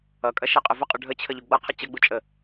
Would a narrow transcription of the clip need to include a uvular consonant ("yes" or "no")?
yes